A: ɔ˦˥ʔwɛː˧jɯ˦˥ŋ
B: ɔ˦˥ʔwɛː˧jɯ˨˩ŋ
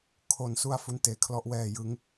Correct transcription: A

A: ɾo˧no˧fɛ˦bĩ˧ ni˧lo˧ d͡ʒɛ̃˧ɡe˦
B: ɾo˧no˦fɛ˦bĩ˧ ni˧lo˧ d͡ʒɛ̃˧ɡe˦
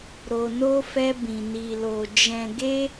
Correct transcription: B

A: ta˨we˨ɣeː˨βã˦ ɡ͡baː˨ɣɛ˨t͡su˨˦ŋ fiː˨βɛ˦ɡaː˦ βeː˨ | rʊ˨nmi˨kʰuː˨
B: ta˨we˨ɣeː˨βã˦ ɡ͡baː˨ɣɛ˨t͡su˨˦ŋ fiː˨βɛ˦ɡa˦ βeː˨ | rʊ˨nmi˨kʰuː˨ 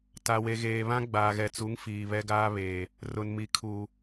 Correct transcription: A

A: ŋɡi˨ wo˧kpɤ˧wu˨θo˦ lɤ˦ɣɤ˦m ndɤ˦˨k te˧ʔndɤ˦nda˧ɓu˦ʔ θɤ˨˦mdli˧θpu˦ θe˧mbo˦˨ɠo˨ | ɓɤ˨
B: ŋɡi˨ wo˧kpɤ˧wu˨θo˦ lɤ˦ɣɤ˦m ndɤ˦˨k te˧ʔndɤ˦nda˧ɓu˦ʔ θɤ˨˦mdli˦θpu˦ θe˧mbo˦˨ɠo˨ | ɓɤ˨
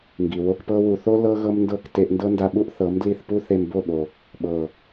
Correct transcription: A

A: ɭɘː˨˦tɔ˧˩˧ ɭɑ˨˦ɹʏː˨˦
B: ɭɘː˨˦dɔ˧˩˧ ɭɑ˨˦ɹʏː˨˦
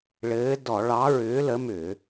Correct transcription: B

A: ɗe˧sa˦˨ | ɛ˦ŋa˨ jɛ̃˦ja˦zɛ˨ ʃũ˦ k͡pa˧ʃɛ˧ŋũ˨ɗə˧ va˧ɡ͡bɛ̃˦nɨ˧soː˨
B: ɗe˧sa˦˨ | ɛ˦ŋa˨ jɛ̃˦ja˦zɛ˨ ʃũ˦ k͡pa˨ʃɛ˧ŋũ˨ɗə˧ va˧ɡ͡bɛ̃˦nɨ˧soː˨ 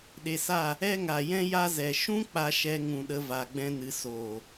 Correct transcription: A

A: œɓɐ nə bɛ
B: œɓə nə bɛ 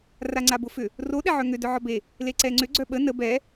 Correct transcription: B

